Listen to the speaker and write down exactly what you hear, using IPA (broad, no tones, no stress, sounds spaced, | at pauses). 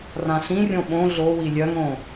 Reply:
r ã ɬ ĩ rʲ õ ɓ õ ɮ o w i lʲ œ ŋ õ